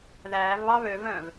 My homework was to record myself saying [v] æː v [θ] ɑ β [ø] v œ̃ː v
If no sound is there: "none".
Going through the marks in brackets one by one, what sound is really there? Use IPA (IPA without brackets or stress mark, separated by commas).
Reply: ð, β, ø